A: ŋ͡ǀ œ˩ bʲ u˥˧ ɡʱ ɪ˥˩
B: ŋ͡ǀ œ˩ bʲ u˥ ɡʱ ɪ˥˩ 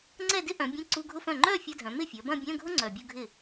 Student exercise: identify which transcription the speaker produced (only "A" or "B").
A